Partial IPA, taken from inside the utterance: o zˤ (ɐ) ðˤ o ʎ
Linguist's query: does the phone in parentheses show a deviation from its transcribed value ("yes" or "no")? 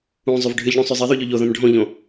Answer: no